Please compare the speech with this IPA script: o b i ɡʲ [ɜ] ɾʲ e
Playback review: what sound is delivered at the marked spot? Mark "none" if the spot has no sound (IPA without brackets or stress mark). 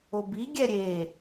ɛ